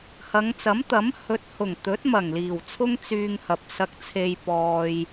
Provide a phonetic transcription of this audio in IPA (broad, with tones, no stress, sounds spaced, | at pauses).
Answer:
h ɐ˨˧ ŋ t͡s ɐ˨˥ m t̪ ɐ˨˥ m h ɵ˨˥ t̚ h ʊ˨˩ ŋ t̪ ɵ˨˥ t̚ m ɐ˨˩ ŋ l iː˨˩ w t͡sʰ ʊ˥ ŋ t͡s yː˧ ŋ h ɐ˨ p̚ s ɐ˧ k̚ t͡sʰ e˧ j p ɔː˨ j